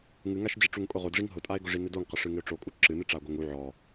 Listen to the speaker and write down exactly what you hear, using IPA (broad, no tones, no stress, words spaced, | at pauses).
ŋɨŋaʃd͡ʑɪ ʈ͡ʂuŋkʼʊʁodʐiŋ ɦʊtʼae̯ɡʊʐi nɪdoŋqɪ ʂɨŋɪo̯ʈ͡ʂokʼu ǁɨnɨ ʈ͡ʂao̯ɡoŋu ʕɔ